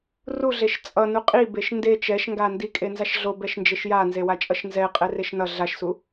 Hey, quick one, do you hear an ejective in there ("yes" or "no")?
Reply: yes